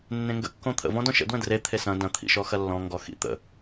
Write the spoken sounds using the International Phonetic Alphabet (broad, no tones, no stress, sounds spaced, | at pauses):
nː ẽ ŋ ɡ ə̰ kː õ t̪ʰ ə̰ v ɔ̃ d ɔ̃ ʃ ə̰ d w ə̃ d r e t̪ʰ e s ɐ̃ d ɐ̃ t̪ʰ ḭ ʃ ɔ x ɐ lː ɔ̃ ŋ ɡ ɔ x ḭ t̪ ə̰